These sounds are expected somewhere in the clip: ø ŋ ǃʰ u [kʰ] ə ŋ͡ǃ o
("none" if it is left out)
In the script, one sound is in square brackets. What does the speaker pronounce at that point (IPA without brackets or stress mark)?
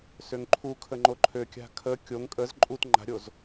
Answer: kʰ